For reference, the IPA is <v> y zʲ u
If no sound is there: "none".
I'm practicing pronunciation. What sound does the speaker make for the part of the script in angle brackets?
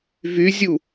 v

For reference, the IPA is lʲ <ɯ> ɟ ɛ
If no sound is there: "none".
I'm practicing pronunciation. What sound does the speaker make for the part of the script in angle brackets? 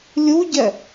u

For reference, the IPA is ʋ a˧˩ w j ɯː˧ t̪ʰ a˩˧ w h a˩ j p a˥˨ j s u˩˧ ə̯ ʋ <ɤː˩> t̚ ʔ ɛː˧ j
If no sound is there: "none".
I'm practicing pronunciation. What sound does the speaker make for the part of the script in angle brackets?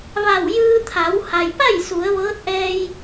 ɤː˧˥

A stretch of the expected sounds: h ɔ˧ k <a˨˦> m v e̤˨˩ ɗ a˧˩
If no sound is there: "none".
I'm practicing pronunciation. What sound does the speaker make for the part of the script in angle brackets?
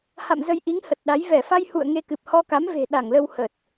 a˨˦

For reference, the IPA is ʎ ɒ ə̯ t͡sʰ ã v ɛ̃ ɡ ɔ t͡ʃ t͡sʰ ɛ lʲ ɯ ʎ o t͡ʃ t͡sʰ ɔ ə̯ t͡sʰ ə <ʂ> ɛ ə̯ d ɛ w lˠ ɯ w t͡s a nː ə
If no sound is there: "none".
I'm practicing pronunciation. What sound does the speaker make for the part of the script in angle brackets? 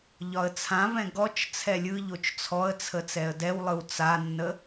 t͡s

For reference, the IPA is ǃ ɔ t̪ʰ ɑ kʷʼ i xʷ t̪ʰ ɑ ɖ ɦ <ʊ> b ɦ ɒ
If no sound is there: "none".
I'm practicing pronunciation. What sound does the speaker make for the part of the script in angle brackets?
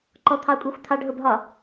ʊ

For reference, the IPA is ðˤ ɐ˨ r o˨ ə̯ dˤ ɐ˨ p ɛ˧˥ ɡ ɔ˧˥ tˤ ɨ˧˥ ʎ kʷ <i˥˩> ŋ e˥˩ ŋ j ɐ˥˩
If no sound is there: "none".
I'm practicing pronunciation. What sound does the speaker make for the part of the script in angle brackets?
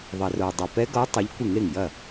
ɨ˥˩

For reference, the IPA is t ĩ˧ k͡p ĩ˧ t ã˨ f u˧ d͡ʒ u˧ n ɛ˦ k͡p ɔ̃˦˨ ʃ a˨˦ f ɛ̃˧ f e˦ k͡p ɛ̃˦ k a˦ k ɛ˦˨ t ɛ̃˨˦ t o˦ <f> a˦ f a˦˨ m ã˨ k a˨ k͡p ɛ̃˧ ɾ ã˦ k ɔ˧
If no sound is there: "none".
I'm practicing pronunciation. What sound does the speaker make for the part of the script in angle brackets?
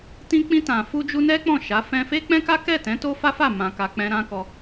f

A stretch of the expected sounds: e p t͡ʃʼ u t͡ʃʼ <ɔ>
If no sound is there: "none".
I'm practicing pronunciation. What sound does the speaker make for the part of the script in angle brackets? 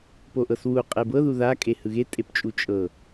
ɤ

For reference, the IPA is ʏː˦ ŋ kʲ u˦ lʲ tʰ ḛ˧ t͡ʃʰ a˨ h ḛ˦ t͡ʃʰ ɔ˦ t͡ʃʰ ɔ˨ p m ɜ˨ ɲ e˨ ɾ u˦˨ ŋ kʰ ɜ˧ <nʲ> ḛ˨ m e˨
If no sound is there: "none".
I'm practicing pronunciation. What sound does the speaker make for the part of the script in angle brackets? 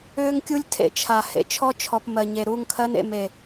n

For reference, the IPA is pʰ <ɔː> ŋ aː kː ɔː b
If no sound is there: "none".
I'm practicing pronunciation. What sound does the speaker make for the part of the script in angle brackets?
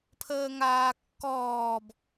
əː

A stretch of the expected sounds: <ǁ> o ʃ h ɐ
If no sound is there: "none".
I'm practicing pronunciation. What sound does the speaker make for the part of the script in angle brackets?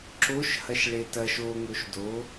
ǁ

